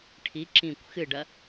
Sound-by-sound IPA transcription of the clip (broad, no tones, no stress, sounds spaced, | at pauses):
ʈʰ i ǁ ĩ kʷ x ɨ ɖ ɐ